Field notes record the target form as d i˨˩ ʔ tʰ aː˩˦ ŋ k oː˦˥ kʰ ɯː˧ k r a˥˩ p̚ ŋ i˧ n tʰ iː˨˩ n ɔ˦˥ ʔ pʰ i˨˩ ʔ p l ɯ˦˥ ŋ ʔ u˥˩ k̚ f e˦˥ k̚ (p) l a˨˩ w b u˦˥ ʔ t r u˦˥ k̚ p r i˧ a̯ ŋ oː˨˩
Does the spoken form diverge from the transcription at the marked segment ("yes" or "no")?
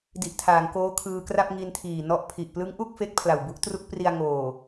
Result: yes